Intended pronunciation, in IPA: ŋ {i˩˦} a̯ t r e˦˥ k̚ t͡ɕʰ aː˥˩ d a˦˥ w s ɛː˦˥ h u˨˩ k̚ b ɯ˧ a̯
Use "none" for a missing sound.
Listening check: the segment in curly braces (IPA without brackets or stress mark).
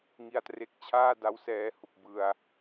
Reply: i˧